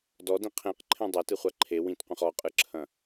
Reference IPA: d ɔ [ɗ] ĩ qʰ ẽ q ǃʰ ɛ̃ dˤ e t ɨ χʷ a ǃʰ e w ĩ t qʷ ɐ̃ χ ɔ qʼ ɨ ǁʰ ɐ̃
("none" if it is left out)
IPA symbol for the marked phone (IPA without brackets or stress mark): d